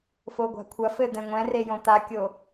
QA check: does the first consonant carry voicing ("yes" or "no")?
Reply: no